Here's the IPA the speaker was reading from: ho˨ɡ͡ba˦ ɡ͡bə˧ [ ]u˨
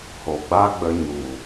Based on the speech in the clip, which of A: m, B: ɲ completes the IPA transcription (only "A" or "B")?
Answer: B